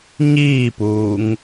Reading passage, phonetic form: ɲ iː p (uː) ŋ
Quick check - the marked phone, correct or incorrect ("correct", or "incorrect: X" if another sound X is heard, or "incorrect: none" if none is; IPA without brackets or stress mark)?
correct